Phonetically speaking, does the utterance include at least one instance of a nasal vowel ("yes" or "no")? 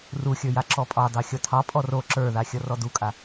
no